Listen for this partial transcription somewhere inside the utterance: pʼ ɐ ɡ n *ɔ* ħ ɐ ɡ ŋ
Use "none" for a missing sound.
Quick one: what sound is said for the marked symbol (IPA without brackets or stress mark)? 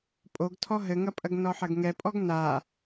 ɔ